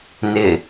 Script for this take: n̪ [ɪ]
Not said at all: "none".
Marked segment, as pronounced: ɪ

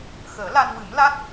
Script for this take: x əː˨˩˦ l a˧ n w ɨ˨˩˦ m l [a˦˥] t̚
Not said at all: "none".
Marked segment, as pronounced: a˦˥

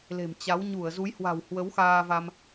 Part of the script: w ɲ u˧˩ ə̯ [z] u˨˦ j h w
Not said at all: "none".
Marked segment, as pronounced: z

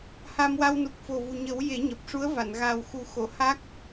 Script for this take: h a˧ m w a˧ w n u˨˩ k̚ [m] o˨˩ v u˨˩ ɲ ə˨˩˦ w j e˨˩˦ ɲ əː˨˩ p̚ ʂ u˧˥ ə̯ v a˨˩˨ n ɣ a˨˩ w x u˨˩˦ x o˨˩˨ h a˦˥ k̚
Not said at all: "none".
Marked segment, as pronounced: f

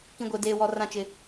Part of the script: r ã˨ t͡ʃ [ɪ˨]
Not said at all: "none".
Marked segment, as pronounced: ɪ˨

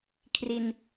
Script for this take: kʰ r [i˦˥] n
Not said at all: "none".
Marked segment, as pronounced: i˧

